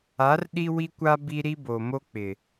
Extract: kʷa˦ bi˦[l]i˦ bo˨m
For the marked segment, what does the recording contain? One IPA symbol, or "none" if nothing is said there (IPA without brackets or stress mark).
ɾ